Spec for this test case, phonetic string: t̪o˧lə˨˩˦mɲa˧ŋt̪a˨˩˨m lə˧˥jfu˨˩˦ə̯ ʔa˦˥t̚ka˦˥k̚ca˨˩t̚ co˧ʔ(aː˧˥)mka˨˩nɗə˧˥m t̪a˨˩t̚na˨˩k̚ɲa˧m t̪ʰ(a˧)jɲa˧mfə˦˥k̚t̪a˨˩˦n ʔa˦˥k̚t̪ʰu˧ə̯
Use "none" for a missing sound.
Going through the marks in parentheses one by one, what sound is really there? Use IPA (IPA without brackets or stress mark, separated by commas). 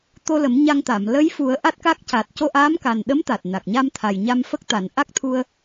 aː˧˥, a˨˩